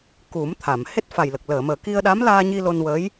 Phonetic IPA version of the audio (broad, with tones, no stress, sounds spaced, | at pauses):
k u˨˩˦ m t̪ʰ a˨˩˨ m h e˦˥ t̚ f a˨˩ j l ə˨˩ k̚ l əː˨˩˨ m əː˨˩ k i˧ ə̯ ɗ a˧˥ m l aː˧ ɲ i˧ l o˧ n w əː˧˥ j